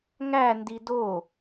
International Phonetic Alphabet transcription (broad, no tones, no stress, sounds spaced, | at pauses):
ŋ æ n d i d o